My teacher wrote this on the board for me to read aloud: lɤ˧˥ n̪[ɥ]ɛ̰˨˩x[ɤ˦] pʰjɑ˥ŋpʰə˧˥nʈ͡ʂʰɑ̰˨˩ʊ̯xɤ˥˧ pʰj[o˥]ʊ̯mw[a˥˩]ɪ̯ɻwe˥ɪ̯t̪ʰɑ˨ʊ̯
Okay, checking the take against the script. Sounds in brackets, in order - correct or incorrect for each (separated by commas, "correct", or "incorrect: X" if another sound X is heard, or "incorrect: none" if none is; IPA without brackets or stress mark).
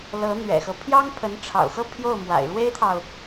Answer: correct, correct, incorrect: o˥˩, incorrect: a̰˨˩